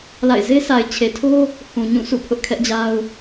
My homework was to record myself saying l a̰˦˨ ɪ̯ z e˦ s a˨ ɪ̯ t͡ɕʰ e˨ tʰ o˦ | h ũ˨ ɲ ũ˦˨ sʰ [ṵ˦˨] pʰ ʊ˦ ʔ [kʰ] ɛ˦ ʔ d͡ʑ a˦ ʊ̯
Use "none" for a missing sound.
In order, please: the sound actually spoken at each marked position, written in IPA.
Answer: ṵ˦˨, kʰ

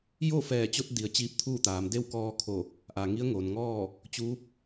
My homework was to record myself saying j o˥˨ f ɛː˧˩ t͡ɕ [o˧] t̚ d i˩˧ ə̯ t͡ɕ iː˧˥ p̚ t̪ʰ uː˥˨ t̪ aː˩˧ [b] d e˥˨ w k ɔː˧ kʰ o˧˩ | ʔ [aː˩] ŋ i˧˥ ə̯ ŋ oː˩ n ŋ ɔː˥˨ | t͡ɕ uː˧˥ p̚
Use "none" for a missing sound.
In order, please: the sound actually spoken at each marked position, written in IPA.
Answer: o˧, m, aː˩

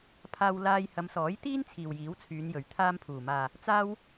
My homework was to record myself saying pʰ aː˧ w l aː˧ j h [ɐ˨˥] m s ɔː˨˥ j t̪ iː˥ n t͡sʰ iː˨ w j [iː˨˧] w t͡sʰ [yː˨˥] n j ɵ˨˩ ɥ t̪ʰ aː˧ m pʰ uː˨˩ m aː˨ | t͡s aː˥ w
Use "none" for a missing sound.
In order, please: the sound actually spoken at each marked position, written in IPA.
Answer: ɐ˨˧, iː˨˥, yː˨˧

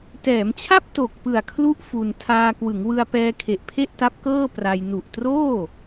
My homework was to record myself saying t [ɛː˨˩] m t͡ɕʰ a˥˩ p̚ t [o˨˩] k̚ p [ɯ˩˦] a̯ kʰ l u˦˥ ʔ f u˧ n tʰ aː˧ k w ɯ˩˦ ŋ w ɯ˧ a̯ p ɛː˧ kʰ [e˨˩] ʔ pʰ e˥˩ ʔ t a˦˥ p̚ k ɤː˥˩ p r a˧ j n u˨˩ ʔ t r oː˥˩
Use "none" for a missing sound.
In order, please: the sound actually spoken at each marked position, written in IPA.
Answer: ɛː˩˦, o˨˩, ɯ˨˩, e˨˩

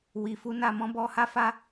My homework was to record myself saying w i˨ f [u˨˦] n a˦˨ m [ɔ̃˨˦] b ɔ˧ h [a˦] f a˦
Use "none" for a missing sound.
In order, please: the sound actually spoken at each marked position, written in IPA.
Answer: u˨˦, ɔ̃˨˦, a˦

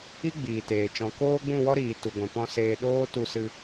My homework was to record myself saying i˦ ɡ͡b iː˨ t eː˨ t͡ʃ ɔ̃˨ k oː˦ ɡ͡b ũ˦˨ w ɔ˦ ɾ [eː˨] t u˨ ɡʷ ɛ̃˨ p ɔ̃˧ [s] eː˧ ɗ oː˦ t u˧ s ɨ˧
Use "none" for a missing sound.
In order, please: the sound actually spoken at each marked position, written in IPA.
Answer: iː˨, s

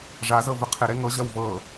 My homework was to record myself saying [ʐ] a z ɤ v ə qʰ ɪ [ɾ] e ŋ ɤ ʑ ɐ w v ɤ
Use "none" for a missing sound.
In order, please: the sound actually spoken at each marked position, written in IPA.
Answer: ʐ, ɾ

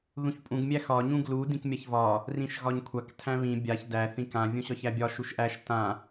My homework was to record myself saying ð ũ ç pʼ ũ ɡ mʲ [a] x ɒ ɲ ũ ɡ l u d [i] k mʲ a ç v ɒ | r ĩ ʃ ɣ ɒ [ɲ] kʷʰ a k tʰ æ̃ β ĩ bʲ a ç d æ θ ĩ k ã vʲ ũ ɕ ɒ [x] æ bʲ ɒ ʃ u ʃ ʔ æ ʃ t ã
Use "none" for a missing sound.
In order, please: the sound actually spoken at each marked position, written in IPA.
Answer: æ, ĩ, ɲ, ç

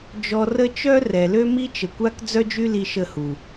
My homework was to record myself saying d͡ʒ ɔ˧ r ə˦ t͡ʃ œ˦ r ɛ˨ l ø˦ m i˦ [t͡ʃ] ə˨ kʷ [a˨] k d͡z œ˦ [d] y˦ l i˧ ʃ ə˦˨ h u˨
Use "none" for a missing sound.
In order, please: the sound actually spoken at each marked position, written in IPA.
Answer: t͡ʃ, a˦, d͡ʒ

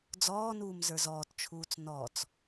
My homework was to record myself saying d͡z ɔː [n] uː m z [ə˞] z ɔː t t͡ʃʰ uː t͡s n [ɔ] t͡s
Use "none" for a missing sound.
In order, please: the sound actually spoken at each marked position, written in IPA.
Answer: n, ə˞, ɔ

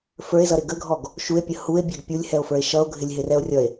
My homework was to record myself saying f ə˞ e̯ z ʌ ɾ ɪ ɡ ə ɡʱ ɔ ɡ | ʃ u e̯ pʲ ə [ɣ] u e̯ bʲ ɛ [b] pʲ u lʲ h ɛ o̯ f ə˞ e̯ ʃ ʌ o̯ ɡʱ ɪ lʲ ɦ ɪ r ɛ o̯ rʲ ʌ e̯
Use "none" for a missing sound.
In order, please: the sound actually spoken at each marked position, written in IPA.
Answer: h, ɡ

